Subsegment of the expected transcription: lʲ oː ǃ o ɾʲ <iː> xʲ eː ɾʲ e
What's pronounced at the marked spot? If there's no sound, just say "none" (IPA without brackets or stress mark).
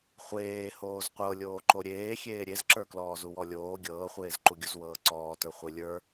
eː